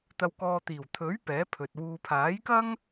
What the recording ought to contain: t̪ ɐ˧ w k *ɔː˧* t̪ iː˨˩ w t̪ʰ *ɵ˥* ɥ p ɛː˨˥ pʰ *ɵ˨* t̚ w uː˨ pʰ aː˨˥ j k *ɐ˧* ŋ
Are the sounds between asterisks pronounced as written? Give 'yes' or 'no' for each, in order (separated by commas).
yes, no, yes, no